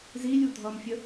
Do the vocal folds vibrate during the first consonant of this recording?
yes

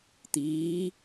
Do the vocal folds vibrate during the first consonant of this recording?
no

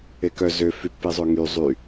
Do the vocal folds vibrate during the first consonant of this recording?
no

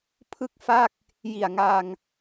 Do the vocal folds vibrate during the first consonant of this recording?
no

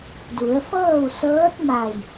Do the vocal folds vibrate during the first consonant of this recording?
yes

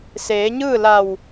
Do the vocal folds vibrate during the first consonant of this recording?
no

